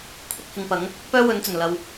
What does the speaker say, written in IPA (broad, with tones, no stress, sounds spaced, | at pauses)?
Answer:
kʷʰ ɪ˥ k̚ h ɪ˨ ŋ p ɐ˨˥ ŋ | p œː˥ w ɵ˨˧ n t͡s ɵ˨˩ n l ɐ˨ w